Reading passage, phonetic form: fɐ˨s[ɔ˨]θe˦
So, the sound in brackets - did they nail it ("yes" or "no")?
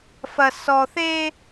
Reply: yes